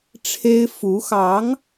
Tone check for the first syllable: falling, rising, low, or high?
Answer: high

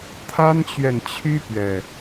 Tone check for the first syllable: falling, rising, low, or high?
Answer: high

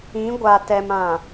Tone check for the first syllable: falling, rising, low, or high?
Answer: rising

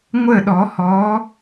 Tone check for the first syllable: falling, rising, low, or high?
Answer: falling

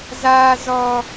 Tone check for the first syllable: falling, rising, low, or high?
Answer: high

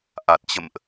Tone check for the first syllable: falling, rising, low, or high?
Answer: low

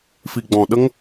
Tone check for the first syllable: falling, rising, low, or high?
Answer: low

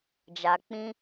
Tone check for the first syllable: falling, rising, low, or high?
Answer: low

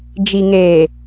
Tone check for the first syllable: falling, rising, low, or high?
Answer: low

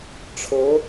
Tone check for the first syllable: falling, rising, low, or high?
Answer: rising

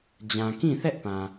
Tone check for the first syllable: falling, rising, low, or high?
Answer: low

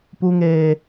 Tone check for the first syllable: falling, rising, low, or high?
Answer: high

